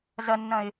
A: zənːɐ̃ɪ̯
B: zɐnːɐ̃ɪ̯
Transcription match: B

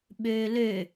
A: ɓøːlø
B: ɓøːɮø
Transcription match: A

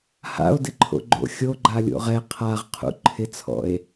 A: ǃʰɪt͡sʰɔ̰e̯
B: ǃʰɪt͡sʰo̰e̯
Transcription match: A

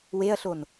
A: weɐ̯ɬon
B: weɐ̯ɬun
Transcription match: A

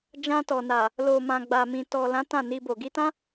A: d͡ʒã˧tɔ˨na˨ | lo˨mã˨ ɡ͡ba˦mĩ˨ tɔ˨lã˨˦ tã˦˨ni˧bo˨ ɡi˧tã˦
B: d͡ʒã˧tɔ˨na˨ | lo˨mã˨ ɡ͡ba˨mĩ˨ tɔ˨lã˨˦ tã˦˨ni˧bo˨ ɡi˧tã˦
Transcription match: B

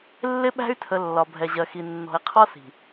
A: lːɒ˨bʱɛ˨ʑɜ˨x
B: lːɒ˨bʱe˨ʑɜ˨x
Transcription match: A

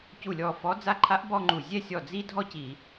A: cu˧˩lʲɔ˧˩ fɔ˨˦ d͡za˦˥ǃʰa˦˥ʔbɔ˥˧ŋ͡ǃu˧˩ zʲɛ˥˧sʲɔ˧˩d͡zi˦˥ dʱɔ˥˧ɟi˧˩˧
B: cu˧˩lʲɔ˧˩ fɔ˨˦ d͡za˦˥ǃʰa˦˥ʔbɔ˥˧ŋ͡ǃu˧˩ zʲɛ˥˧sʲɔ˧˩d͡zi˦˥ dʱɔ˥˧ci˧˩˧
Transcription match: B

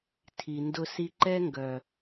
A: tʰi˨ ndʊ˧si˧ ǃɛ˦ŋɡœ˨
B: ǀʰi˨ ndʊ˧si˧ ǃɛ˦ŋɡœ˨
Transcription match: A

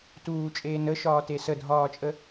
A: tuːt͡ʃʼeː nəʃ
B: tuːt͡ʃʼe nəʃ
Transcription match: A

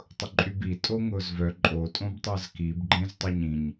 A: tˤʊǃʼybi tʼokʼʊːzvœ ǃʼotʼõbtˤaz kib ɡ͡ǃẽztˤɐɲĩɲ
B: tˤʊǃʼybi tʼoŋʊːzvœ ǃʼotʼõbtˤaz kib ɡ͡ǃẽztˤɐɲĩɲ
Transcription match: B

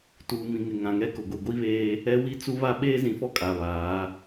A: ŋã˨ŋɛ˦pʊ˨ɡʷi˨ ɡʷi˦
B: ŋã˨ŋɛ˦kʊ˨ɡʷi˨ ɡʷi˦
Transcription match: B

